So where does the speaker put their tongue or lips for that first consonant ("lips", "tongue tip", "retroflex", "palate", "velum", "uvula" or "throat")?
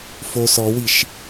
lips